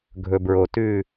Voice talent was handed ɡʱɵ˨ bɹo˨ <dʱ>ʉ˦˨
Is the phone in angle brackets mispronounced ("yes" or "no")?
yes